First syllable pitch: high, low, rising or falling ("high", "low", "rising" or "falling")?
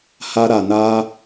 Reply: high